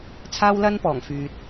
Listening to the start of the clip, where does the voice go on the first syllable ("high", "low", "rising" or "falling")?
high